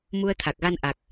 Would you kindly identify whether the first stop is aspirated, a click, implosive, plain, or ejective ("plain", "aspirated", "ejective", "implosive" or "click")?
aspirated